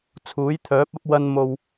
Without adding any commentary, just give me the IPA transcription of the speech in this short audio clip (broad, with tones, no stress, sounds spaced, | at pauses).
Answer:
t͡sʰ uː˨˥ j t̪ʰ œː˨˥ p̚ ɐ˥ p̚ w ɐ˧ n m o˨ w